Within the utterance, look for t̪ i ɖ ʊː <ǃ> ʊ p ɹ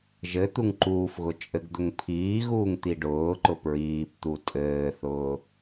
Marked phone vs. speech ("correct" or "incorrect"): correct